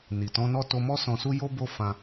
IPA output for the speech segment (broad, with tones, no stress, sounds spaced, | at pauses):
n i˨ t ɔ̃˨˦ n ɔ˦˨ t o˧ m ɔ˦ s ɔ̃˧ s u˦ j o˦ b o˦ f ã˧